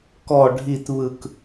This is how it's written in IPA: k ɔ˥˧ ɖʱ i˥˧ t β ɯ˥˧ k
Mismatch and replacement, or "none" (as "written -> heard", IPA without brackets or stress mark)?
none